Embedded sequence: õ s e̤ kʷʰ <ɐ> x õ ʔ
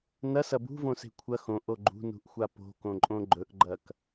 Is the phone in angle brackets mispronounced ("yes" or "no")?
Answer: no